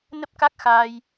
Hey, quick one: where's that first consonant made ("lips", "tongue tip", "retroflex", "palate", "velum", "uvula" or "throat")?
tongue tip